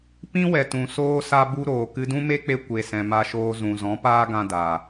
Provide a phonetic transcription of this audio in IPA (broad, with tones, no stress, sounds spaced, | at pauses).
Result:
p ĩ˦ w ɛ˨ t ũ˨ s oː˦ s a˦ b u˦ ɾ oː˨ k ɨ˧ d ũ˦ m e˦ k͡p e˦ kʷ e˨ s ɛ̃˨ m a˧ ʃ oː˧ z ũ˨ z ɔ̃˨˦ p aː˦ ɡ ã˧ d a˨